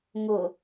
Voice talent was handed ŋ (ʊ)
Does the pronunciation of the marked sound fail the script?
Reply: no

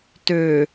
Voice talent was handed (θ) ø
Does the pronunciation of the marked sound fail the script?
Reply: yes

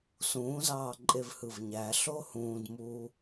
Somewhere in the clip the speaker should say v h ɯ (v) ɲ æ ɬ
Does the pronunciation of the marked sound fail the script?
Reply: no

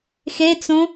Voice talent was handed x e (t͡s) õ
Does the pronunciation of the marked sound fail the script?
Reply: no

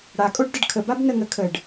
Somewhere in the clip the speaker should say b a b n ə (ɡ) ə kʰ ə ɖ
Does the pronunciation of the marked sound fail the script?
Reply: yes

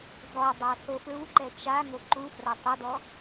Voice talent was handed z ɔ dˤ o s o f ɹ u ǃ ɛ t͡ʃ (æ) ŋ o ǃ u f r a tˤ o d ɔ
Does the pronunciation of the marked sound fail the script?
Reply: yes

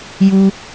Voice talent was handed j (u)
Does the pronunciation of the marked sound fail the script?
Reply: no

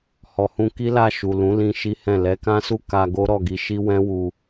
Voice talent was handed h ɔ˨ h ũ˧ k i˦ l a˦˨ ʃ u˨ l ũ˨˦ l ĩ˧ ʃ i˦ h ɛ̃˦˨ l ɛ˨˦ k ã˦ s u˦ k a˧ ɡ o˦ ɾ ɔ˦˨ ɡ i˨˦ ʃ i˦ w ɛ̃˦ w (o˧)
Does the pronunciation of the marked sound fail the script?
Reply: yes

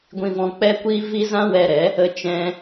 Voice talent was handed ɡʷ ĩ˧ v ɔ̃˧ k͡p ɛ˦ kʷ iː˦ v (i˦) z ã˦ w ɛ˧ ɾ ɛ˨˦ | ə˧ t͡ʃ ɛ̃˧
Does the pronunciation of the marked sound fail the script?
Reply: no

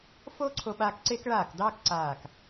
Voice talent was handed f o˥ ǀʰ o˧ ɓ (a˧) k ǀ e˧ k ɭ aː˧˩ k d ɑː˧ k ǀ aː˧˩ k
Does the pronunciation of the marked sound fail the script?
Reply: no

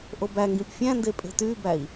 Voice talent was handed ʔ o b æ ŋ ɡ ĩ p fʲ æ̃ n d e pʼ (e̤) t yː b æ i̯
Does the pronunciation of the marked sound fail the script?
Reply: no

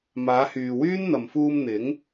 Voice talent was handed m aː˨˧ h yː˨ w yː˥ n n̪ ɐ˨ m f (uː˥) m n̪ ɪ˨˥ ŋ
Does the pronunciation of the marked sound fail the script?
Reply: yes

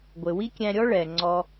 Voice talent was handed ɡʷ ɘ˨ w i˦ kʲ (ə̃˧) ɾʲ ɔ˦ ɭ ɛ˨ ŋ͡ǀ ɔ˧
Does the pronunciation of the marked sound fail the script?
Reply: yes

